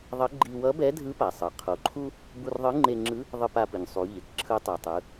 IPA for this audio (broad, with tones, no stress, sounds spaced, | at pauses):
ðˤ ʌ˧˥ ɡ͡ǃ i˧ w ʌ˧˥ b ɛ˧˥ dʱ ɯ˧˥ p a˩ sˤ ɯ˩ qʰ o˩˧ ǃʰ u˥ | b u˧ r ðˤ ɯ˧˥ ŋ͡ǃ e˧ ŋ͡ǁ ɯ˧˥ | ðˤ ɯ˧ p a˧ p ɯ˩ ɲ sˤ u˩˧ ʎ e˩ k ǁʰ ɯ˧˥ tˤ o˩ tˤ ɯ˩˧